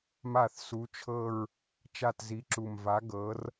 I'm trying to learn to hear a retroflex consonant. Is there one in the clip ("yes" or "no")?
no